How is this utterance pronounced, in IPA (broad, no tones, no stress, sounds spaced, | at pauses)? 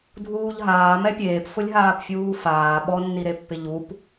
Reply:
dʱ uː ʎ ɦ aː m ɛ pʲ eː p f ʊ lʲ ɦ aː p fʲ uː f aː ɓ ɔ nː i ɾ e pː ɪ ʎ u p